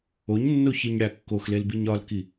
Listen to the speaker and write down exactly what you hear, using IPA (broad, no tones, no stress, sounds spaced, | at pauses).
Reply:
o ɲ nː o ç i ɲ ɽ æ kː o x l e l b i ɲ ɒ l k i